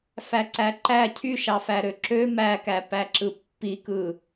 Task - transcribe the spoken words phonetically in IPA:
fæǀæǃæ cʰyʃɑ fæɾøǁø mækæ pæǁɯpːikɯ

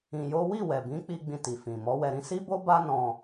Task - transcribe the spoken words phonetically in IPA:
ĩ˧jo˦ wi˦˨wɛ˨bĩ˨˦ k͡pi˧ ɡ͡bĩ˧ti˨fĩ˨ mɔ˨˦wɛ˧ɾĩ˦ si˦bo˦ba˦ nɔ̃˧

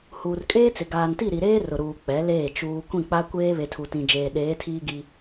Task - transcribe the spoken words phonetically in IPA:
huː˨rkʼeː˦t͡sɪ˨ ɡaː˨nti˦˨ɾi˨ɾeː˦ rʊ˨ɾuː˨ k͡pɛ˨˦leː˦˨ t͡ʃuː˨ kʷĩ˦˨k͡pa˦kʷeː˦ βe˨tʰu˨tĩ˨d͡ʒeː˨ ɗeː˨˦tʰiː˦ɡi˦

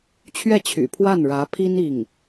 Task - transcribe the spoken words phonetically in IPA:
t͡ɕʰɥɛ˥˩t͡ɕʰy̰˨˩ pʰwa˥˩nɻä˧˥pʰi˥n i˥˩ŋ

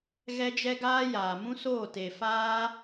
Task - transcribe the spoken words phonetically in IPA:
ɣɛ˦d͡ʒɛ˦ɡaː˦ jaː˨mũ˦soː˦˨ te˨ faː˦

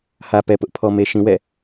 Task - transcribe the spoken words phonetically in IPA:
hä˨pɛ˨pʊ˦ʔ pʰɔ˨me˨ ʃĩ˨wɛ̰˦˨

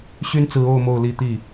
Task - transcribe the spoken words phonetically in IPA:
ɕy˥nt͡sɹ̩˧˥o˥˧ʊ̯ mo˥˧ʊ̯li˥˧t̪i˥˩

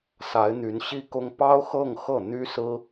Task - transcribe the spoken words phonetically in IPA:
sa˧˥ɪ̯n̪y˧˥nɕi˥kʊ˥ŋ pɑ˥ʊ̯xɤ˥˧ŋ xɤ˥˩ n̪y˥sɹ̩˥

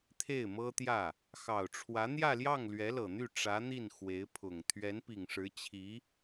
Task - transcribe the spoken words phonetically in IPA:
t̪ʰe˥˩ɪ̯mɤ˥t̪jä˥˩ | xɑ˨˩ʊ̯ʈ͡ʂʰwä˧˥ n̪jä˥˧ljɑ˥˩ŋ lɥɛ˧˥lɤ˨˩n̪y˥˩ ʈ͡ʂä˧˥n̪i˥˩n xwe˧˥ɪ̯pʰʊ˨˩ŋ t̪ʰɥɛ˧˥npi˨˩ŋʂɻ̩˧˥ t͡ɕʰi˧˥

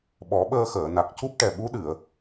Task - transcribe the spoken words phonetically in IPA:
ɓɔ˨˩˦ɓəː˧xəː˨˩˨ na˨˩k̚cu˦˥p̚ ʈɛ˨˩ɓu˧˥ɗɨ˨˩˨ə̯

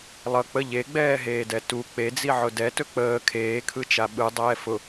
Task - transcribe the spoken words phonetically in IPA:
lˠʌ k͡pə ʎeɡ͡bɛːɦeːdɛ tu k͡ped͡ziʕʊ dɛtɵ k͡pəː kʰeːkʰɯt͡ʃa ɓɯdˤɛː fʊ

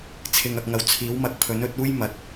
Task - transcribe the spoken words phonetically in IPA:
t͡sʰɪ˨ŋɐ˨k̚ŋɐ˨w t͡sʰiː˨˥wmɐ˨˥k̚ pʰɵ˨˥nɵ˨˥t̚uː˥j mɐ˨˥t̚

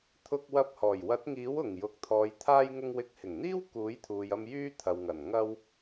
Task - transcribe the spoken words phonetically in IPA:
t̪ʰʊ˧k̚wɐ˧p̚hɔː˨˩j wɐ˨˥t̚ŋiː˨˥w ʊ˨˩ŋ jʊ˨˥k̚t̪ʰɔː˨˧jt̪ʰaː˥j ŋʊ˧ŋwɪ˨˥k̚hɪ˨˩ŋn̪iː˥w kuː˨˥jt̪ʰuː˨jɐ˧m jyː˥t̪ʰɐ˨wŋɐ˨˩n ŋɐ˧w

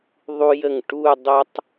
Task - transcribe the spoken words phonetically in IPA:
ðˤu˧jə˧˩ŋ ʈu˥˧ dˤo˥tˤ

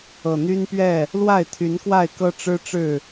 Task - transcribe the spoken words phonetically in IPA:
ɤ˨˩ n̪y˦npɥɛ˥˨ | lwa˥˨ɪ̯t̪ʰy˨˦nkwa˥˨ɪ̯kɤ˦ ʈ͡ʂɻ̩˦ʈ͡ʂɻ̩˥˨

